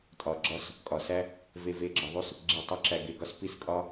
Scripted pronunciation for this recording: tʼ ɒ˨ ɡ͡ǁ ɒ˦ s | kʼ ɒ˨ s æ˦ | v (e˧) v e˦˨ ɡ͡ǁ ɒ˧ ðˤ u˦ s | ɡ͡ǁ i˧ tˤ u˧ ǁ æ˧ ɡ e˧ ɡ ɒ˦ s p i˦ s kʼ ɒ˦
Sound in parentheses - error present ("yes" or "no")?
no